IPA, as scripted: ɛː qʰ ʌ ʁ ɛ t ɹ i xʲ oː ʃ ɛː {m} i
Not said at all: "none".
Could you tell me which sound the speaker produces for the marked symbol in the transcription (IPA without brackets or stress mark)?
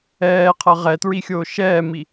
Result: m